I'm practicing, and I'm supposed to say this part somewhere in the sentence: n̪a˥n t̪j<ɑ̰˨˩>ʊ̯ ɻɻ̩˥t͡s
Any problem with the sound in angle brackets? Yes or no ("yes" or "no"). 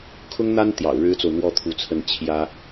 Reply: no